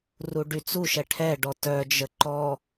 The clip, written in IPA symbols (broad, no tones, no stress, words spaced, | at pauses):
ruɖyt͡suʃɛ ʈʰɛɖɔ tœd͡ʒə ǃɔ